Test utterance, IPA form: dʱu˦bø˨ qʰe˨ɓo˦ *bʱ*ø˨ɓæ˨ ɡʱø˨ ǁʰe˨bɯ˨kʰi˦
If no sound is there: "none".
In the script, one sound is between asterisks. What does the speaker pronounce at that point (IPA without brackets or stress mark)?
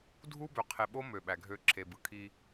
m